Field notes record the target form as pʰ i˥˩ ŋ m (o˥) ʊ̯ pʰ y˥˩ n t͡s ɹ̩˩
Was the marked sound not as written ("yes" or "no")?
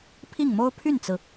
no